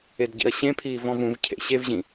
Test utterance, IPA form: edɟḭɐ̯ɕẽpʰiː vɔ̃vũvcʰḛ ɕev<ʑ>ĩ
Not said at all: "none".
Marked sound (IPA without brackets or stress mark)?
ʑ